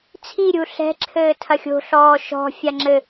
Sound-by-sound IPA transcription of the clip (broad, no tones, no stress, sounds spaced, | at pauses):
t͡sʰ i ɾʲ u ɬ ɛ̤ ǁʰ ɘː tʰ ɐ xʲ o̤ ɬ ɔː ʃ ɔ̤ fʲ a ŋ͡ǁ ɘ